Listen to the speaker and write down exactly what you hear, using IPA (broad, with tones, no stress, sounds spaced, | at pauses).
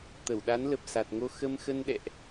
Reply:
t̪ ə˧˩ w ɗ a˨˦ n l ə˨˩ p̚ s a˨˩ t̚ ŋ o˧ x ə˧ m x ə˧ n ɗ ɛ̰˧˨ ʔ